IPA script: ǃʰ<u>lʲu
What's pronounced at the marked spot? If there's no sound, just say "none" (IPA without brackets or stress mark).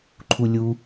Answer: u